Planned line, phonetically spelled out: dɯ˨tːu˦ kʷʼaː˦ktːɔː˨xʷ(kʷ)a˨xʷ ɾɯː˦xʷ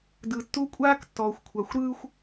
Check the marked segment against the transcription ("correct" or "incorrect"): incorrect